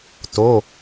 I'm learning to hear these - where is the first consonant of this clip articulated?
tongue tip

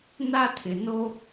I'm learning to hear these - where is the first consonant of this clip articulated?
tongue tip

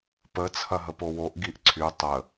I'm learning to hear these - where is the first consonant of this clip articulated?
lips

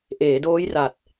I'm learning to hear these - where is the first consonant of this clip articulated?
throat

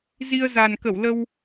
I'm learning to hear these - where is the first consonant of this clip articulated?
tongue tip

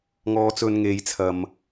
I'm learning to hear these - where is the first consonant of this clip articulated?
velum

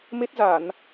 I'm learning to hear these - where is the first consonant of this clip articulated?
lips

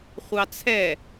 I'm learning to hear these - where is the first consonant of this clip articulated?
uvula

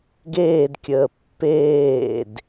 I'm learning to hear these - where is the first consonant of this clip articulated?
velum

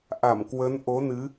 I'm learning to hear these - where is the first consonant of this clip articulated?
throat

